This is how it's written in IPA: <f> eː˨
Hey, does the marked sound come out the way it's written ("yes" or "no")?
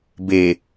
no